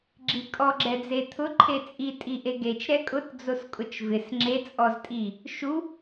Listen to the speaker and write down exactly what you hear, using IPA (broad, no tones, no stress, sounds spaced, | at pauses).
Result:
ɡ͡ǁ i kʼ ɔ ɡ͡ǁ ɛ d͡z e t̪ʰ ʊ ǃʰ e t͡sʼ i tʼ i ʔ e ɡ e t͡ʃ ɾ ɛ kʼ ʊ t d͡z o s kʼ ʊ t͡ʃ v ɪ s ŋ͡ǁ e t͡sʼ ɔ z tʼ i | ʃ u